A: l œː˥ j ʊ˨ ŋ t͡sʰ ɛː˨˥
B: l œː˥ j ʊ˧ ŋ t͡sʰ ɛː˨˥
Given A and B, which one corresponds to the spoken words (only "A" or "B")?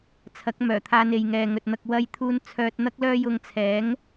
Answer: B